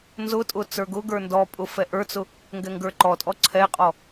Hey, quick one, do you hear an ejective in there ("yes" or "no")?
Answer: yes